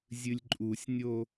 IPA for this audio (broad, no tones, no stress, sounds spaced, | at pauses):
zʲ ɨ lʲ ǃʼ u sʲ nʲ o